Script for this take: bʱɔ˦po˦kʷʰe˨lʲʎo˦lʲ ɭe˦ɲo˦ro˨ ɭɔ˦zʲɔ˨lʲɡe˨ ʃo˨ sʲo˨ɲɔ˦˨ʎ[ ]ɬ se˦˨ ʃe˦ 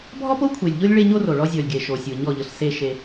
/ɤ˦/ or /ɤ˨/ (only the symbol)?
ɤ˨